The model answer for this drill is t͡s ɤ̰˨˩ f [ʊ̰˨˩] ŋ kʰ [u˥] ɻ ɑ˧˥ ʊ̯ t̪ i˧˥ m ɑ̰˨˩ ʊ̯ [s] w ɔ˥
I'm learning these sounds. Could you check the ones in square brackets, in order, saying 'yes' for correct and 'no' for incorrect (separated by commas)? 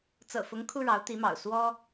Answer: no, yes, yes